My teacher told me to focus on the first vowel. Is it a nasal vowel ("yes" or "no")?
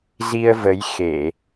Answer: no